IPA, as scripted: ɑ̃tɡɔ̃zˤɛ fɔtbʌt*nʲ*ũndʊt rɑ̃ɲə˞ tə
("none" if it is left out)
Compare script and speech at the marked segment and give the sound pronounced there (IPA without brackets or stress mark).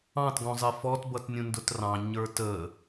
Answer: nʲ